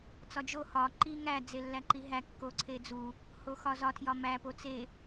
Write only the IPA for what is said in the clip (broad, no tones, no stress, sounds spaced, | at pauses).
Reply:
t͡s ɒ d͡ʒ o h ɒ ǃ i ŋ æ d͡z e lː æ ǃ i ɦ æ kː o ǀʰ e d͡z u | h o x ɒ z ɒ tʰ j ɒ m æ p o t͡s e